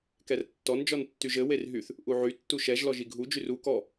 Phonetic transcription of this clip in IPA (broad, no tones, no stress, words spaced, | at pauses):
kɛrtːɔn d͡ʒɔntːyʒɘ werɦyθ | ʔuʕy tːuʃɛʒ lɔʒiɡʱu d͡ʒyru kɔ